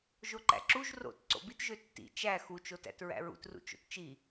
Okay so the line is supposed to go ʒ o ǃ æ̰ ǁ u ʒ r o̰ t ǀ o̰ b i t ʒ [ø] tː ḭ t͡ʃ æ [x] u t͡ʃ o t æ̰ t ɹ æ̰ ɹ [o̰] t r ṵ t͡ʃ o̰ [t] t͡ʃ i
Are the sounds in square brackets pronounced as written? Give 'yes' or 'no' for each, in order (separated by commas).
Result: yes, yes, no, yes